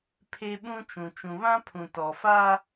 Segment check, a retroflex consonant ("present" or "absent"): absent